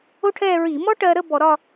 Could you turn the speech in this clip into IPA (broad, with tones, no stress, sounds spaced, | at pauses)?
o˥ ʈʰ ɛː˥˧ ɹ i˧˩˧ m ɔ˥ ʈ ɜ˧ ɾ ə˥˧ b ɔ˧˩˧ ɾ ɒ˥˧